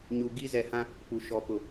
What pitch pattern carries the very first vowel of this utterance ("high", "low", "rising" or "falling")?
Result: low